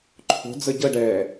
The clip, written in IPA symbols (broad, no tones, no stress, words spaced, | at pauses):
ǃʰo̤ d͡zəɟəɖɛː